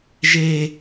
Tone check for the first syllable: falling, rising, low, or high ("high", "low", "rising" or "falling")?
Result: high